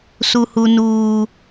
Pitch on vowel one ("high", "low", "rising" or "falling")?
high